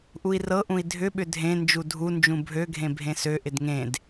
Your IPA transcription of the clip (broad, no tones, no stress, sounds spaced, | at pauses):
ʔ u i̯ r ɤ ʔ ũ i̯ dʱ ʏ ɓ ʏ dʱ ẽ n d͡ʒ u dʱ u n d͡ʒ ũ bʱ ø ɡʱ ẽ bʱ ẽ s ø ʔ ɪ d ŋ ẽ d